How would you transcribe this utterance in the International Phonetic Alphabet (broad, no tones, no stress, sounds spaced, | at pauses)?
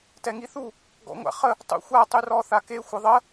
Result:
t ɛ ŋ i θ u | ɡ ɔ̰ ŋʷ a̰ χ ə | tˤ ṵ xʷ a tˤ y r ɔ θ a k e xʷ ə ðˤ ə